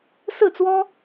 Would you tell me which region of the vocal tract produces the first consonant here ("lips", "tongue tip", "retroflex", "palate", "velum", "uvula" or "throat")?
tongue tip